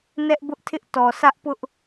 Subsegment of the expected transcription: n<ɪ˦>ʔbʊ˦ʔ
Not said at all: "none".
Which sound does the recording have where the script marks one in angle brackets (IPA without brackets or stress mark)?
ɛ˦